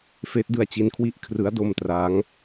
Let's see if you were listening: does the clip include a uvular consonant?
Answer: no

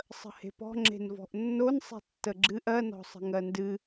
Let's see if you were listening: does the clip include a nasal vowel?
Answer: no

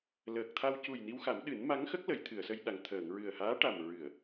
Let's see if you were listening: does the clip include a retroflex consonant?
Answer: yes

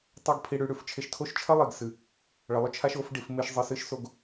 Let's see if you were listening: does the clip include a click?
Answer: no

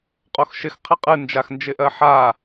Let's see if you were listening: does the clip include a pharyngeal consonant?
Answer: yes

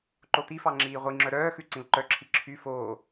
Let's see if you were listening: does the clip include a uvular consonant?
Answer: yes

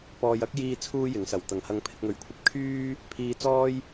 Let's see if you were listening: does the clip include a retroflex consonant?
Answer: no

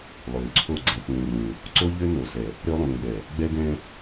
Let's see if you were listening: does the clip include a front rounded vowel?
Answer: yes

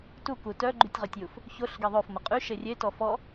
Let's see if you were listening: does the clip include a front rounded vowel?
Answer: yes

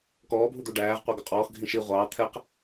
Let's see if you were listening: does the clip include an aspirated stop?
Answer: yes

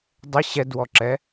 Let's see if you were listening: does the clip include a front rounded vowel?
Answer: no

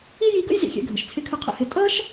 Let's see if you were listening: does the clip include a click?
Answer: no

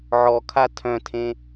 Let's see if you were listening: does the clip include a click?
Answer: no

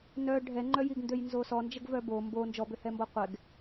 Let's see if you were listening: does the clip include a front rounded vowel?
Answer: yes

